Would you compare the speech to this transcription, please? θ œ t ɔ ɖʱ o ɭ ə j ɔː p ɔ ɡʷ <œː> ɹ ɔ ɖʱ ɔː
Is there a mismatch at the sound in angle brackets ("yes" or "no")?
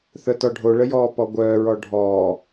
no